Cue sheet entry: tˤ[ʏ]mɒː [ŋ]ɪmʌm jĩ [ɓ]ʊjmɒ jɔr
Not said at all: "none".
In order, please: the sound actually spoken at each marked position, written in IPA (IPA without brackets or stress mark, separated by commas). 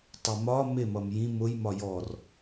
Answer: ɛ, m, m